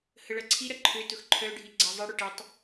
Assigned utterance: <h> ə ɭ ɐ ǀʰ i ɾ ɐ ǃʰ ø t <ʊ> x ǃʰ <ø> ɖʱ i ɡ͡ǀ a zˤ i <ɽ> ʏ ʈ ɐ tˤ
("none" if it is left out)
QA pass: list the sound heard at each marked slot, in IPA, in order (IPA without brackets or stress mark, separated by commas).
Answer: h, ʊ, œ, ɽ